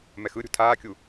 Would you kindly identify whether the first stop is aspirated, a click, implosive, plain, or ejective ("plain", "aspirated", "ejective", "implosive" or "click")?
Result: aspirated